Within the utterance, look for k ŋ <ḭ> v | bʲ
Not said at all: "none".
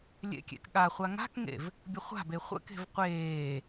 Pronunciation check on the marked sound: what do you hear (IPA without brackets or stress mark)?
ḛ